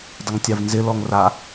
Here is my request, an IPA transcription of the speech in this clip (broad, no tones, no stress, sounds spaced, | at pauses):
dˤ ə ŋ tʲ a v n z ɪ l ɔ ŋ r a